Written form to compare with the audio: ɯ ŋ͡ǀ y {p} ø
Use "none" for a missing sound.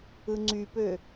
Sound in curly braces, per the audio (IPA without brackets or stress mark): p